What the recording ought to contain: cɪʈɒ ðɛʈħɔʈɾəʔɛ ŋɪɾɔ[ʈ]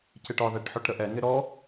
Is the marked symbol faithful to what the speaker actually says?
no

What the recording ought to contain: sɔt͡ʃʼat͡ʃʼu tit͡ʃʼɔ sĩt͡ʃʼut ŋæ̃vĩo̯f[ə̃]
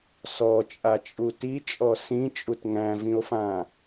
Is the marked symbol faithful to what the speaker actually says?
no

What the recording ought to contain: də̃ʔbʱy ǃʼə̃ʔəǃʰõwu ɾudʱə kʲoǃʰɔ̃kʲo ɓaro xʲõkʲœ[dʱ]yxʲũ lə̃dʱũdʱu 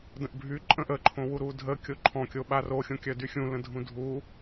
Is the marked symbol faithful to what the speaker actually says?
no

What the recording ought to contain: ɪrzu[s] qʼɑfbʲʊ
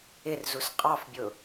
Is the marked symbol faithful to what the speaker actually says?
yes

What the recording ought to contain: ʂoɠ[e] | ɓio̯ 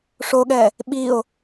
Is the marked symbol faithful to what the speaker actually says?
no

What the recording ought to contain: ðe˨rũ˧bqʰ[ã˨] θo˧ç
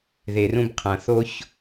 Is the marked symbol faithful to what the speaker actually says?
yes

